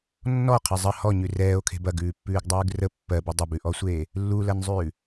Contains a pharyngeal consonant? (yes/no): no